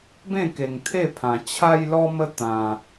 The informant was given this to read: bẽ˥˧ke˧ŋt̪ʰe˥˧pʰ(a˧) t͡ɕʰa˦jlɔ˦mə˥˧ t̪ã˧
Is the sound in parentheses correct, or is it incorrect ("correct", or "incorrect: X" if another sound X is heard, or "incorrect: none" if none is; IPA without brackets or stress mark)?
incorrect: ã˧